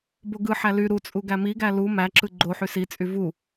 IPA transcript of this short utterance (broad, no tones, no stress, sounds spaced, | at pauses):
b o ɡ ɯ ħ æ l y ɾ u t͡sʼ u ɡ æ m i ɡ æ l u m æ ǁ ɯ ɡ͡ǃ o ħ y s i t͡sʼ y v u